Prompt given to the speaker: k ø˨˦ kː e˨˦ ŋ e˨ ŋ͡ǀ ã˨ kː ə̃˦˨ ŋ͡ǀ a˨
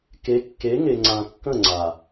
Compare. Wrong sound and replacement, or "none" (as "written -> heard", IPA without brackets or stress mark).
ø˨˦ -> e˨˦